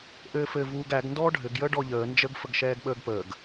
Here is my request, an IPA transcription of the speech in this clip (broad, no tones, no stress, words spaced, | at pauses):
ʔɘːfɘ vuːɡæɡ ndɔːɖʱɘɡ jəːɖɔʎəː nd͡ʒəɡ fəɡʃɛːɡɓəːɡpəːɡ